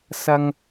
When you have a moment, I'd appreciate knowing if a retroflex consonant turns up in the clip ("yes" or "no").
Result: no